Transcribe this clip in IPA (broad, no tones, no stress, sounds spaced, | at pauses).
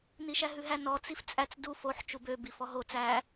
n i ʃ æ ɦ ʉ ɦ æ n ɔ t͡s i f t͡sʼ æ t͡s d u f o ħ t͡ʃ u b ø b i f ɔ ɦ o t͡s æ